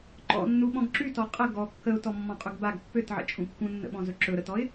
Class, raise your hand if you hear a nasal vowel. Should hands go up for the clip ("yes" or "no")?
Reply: yes